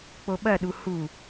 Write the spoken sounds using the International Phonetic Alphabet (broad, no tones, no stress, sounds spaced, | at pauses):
k͡p o ɓ ɐ ɗ u h u